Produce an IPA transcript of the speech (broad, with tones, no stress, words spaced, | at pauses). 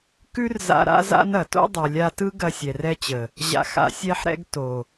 kʉ˦rza̰˧ ɾa̰˦za̰˦nɐ˨ to̰˦dˤɯ˨lʲa˧tɯ˦ ɡɐ˧sʲɛ˨rɛ˧t͡ɕə˨ | ʑa̰˨xa̰˨ sʲɛ˧ħɾɛ̰˧ɡ to˨